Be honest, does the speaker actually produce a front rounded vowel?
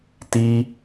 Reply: no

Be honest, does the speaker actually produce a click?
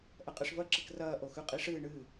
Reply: yes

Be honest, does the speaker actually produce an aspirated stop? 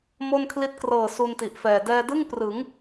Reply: yes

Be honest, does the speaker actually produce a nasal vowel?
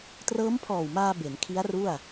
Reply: no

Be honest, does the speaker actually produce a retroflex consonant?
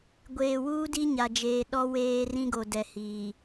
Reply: no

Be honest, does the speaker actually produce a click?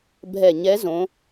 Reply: no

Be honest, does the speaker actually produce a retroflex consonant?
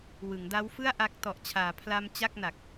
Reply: no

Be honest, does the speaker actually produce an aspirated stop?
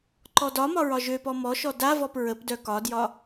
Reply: no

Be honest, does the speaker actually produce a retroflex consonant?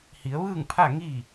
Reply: no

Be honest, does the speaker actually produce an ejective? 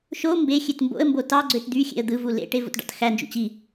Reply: no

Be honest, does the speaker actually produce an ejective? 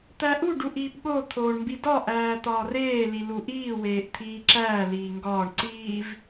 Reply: no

